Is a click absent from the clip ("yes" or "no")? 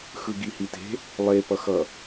yes